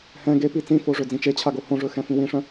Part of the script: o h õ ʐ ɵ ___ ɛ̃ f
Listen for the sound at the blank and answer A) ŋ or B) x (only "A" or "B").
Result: B